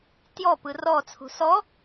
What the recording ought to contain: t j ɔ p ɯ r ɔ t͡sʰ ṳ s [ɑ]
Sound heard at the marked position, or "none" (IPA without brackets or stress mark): ɔ